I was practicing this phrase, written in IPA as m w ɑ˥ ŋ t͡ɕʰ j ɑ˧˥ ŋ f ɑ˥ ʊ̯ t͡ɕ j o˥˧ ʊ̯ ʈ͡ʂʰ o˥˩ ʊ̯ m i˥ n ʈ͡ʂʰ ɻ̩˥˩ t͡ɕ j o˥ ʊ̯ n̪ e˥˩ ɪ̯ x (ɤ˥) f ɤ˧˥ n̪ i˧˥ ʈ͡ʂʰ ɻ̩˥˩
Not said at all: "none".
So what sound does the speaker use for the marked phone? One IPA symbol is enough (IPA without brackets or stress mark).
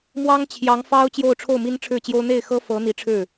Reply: ɤ˥